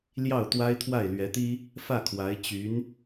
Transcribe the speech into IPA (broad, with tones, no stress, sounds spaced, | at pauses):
l j ɑ˥˩ ʊ̯ t̪ w a˥ ɪ̯ t̪ʰ w a˥˩ ɪ̯ l ɥ ɛ˧˥ t̪ i˥ | f ä˥˩ kʰ w a˧˥ ɪ̯ t͡ɕ y˧˥ n